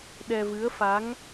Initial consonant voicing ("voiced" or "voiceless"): voiced